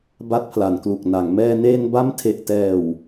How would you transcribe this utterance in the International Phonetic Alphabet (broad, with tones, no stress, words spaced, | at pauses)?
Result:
ba˦˥t̚pʰla˩˦nklu˨˩k̚na˩˦ŋ mɛː˧neː˧nba˦˥m tʰe˨˩ʔtɛː˨˩w